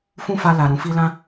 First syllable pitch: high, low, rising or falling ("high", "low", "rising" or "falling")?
high